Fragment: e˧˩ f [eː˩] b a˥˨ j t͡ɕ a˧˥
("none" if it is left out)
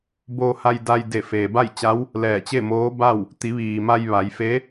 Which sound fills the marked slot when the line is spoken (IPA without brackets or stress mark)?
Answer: eː˩